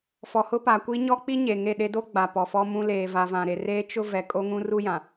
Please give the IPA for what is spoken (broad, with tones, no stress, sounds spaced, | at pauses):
f ɔ˨ h ʊ˦ p a˨ kʷ i˦ ɲ ɔ˦ k͡p i˦ ɲ e˨ ŋ e˦˨ ɗ e˦ d o˦ ɡ͡b a˨ p ɔ˨ f ɔ˦ m ũ˦ l eː˨ v a˨ v ã˨ ɾ e˨ r eː˦ t͡ʃ ʊ˦ v ɛ˨ kʼ o˦ ŋ ũ˦ r u˦ j ã˨